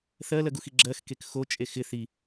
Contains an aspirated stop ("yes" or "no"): no